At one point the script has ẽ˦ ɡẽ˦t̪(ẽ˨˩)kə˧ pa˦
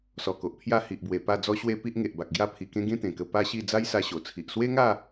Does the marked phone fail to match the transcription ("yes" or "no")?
no